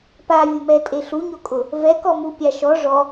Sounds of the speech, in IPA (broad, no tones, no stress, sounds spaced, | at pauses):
p a vʲ ʊ m ɛ tʼ e ɬ u ɲ o kʼ ʊ | v ɛ k ɔ m u pʲ a ʃ ɔ ʐ ɔ